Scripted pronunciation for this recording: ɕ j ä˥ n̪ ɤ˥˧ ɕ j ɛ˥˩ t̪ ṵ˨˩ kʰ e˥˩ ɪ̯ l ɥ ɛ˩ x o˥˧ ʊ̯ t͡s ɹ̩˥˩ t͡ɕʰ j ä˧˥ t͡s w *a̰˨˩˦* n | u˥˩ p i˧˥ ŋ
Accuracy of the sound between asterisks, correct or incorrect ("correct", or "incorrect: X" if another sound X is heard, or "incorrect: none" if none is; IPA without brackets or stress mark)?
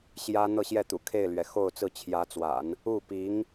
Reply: correct